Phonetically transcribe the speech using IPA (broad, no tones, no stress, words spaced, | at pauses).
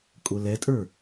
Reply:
kʼʊlɛtʼə˞